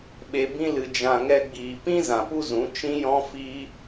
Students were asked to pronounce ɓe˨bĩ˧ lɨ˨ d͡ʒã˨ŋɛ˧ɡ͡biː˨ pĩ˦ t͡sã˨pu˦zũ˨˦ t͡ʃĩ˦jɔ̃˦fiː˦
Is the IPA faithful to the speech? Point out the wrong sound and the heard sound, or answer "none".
t͡s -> z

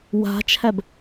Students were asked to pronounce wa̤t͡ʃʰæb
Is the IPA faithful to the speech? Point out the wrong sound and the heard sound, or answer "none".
none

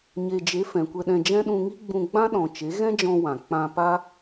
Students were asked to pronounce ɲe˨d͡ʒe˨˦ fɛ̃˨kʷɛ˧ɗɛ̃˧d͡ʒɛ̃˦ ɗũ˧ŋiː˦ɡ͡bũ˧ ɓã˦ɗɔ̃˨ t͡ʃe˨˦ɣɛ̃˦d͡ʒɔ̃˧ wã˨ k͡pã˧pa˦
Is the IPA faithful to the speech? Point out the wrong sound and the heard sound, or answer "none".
ɓ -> ɡ͡b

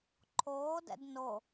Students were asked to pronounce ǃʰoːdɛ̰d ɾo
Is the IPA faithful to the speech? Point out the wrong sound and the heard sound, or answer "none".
ɾ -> n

